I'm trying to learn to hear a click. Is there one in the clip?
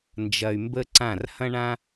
yes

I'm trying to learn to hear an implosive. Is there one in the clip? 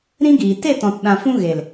yes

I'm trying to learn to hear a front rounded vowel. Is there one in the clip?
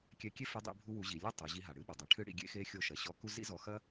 no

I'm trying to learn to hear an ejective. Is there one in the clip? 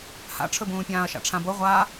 no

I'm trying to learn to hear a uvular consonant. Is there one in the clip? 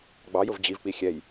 no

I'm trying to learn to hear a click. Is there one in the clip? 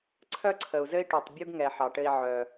yes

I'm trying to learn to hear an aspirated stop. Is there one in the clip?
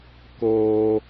no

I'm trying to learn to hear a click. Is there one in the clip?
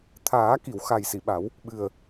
no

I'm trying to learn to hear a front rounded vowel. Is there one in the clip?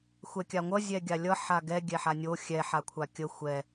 no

